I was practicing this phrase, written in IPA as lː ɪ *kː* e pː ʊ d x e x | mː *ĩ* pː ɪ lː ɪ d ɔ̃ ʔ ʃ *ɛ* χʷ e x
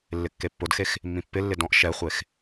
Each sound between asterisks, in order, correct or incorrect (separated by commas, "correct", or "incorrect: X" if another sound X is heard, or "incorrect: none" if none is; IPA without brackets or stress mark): correct, correct, correct